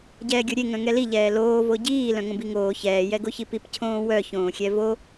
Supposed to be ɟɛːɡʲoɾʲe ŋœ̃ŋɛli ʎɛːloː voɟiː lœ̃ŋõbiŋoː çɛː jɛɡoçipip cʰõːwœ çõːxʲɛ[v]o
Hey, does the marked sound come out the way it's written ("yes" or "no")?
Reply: yes